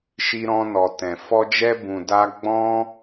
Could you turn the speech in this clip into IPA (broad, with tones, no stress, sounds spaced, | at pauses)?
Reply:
ʃ i˧ ɾ ɔ̃˧ n ɔ˨ t ɛ̃˨ f ɔ˧ d͡ʒ ɛ˧ b ũ˨ d a˧ ɡ͡b ɔ̃˧